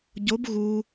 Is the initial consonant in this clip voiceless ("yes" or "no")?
no